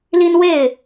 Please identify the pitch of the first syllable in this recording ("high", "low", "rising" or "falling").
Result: high